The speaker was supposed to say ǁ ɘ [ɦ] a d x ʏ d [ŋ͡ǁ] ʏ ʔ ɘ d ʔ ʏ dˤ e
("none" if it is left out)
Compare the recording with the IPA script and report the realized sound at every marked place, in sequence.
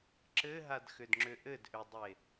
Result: ɦ, ŋ͡ǁ

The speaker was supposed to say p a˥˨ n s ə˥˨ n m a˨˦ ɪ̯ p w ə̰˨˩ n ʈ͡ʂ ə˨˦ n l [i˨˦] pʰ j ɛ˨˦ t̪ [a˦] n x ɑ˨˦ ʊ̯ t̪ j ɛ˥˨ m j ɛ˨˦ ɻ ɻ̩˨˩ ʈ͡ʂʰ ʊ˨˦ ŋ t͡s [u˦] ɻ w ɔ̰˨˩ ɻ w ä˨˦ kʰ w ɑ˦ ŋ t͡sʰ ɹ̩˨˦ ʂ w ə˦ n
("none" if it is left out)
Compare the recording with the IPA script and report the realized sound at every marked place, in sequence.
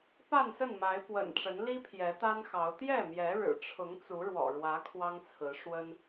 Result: i˦, a˦, u˨˦

